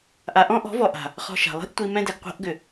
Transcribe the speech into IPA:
ʔ a˨ ʔ ɔ̃˦ ʔ ɔ̤˨˦ v ɔ˨ ʔ a̤˨ | χ ɔ̤˧ ʃ a̤˨ lˠ i̤˦ ʔ tʷ i˧ m ɛ̃˦ d ɛ˨ ɡ qʷ a̤˧ ʔ ɡ ʏ˨

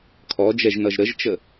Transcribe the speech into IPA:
kʰ ɔ d͡ʒ ɛ ʒ n ʌ ʒ ɾ ə ʒ t͡ʃ ə

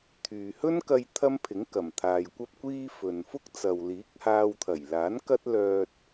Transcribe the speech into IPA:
t̪ʰ yː˨ h ɵ˥ n k ɐ˧ j t̪ʰ ɐ˥ m pʰ ɪ˨˥ ŋ k ɐ˨˩ m t̪ʰ aː˨ j kʷ ɐ˥ p̚ kʷ iː˥ f ɵ˨ n f ʊ˥ k̚ t͡s ɐ˨ w l iː˨˥ k̚ h aː˧ w t̪ʰ ɐ˨˩ j l aː˨˥ n k ɐ˥ t̚ l œː˧ t̚

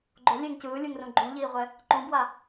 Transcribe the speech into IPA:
ɡ͡ǃ o lʲ e ŋ c ɯː lʲ ɯ ŋ r ũ ɡ͡ǃ ũ ʎ iː ʁʷ ɛ | ǃ ũ b w a

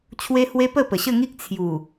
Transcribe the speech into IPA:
t͡ɕʰ w e˦ h w e˦ p ə˥˧ p ə˨˩ ɕ ə˥˧ ŋ i˦ k̚ t͡sʰ j u˨˩

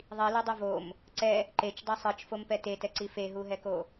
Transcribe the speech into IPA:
ðˤ i l o dˤ u v o m | ǀ ɛ | ǃ e t͡ʃ dˤ ɛ sˤ ɯ t͡ʃ f o m p ɛ t e t ɛ ǀ i f e ɦ u ɦ ɛ k o

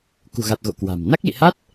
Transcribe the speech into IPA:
k ṳ˨˩ ɣ a˨˩ t̚ ɣ o̰˧˨ k w a̤˨˩ m n a˦˥ k̚ l ḭ˧˨ h a˦˥ t̚

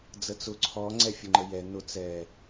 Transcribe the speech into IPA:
d͡z ə t͡s ʊ ǀʰ ɔ ŋ͡ǀ ɛ fʲ ʊ ŋ͡ǃ ə j ɛ n ʊ t͡s ɛ

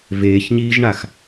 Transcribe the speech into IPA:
v eː ç ɲ iː ʒ ɳ a x

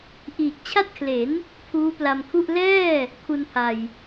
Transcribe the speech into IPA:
ʔ iː˨˩ k̚ t͡ɕʰ a˥˩ t̚ kʰ l e˩˦ n | pʰ uː˦˥ p l a˧ m kʰ u˥˩ ʔ l ɛː˥˩ | kʰ u˧ n pʰ a˨˩ j

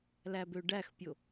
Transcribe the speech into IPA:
l æ b ø ɖ æ x pʲ o

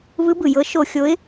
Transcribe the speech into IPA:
β ɯ˧˥ b ɯ˩ j ɤ˧˥ ʃ o˧ xʲ o˧˥ ɪ̯

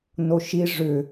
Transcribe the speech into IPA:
n o ʃ i ʐ ʏ

